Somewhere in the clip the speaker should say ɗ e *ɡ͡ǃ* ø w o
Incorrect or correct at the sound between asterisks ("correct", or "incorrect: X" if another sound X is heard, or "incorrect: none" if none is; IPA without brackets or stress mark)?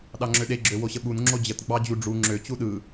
incorrect: ɡ͡ǁ